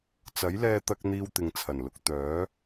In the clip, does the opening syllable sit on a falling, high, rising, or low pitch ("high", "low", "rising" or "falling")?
rising